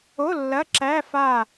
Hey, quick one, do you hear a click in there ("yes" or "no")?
yes